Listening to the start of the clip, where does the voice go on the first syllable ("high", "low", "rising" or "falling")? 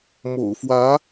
low